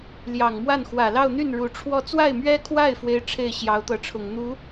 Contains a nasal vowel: no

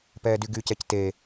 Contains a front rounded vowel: yes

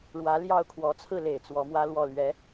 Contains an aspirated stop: yes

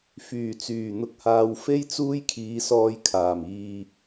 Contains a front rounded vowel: yes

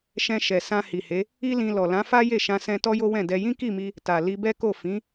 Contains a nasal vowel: yes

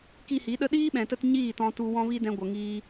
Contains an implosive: yes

